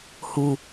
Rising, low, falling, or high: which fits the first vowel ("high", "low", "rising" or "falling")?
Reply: low